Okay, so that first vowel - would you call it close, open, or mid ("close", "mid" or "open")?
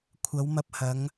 open